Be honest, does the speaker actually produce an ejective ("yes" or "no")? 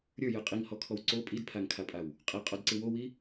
yes